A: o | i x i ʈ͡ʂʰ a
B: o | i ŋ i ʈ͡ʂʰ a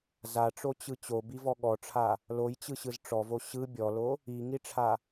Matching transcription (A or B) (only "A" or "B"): B